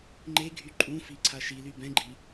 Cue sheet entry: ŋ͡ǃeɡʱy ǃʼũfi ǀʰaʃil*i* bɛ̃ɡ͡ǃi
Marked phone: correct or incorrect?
incorrect